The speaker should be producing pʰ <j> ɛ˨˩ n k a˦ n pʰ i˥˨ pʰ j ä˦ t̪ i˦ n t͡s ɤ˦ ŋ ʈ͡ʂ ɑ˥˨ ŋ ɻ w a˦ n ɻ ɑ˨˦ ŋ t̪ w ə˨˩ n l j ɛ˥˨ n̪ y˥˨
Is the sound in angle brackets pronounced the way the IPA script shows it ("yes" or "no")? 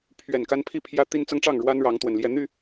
no